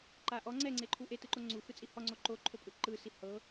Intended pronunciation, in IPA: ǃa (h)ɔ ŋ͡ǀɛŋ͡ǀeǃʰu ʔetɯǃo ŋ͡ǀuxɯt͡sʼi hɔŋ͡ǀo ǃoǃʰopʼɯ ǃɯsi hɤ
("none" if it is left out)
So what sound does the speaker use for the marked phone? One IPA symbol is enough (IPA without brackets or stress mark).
ʔ